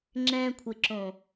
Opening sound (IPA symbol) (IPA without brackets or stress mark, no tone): ŋ͡ǁ